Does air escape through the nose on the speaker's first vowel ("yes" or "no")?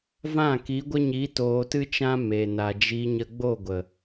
yes